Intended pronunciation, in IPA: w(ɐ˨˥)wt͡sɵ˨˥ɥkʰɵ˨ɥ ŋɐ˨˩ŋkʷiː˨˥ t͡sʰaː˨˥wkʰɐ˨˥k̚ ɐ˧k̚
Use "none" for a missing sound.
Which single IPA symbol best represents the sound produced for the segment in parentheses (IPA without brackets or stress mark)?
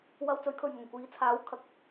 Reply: ɐ˧